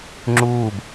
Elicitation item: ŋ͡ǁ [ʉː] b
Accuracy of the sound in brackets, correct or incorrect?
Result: incorrect